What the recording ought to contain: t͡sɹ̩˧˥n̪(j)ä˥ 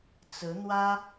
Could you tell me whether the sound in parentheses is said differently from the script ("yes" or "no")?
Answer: yes